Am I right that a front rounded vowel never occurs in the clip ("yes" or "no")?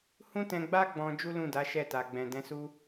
yes